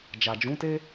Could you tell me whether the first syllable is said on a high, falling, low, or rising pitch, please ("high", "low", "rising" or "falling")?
low